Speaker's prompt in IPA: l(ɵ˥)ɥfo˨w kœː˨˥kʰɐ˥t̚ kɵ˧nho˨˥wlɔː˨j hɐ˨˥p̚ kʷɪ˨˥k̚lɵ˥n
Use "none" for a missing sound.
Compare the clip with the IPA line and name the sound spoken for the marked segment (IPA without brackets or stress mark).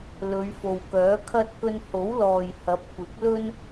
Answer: ɵ˨˧